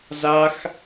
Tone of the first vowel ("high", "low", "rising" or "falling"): high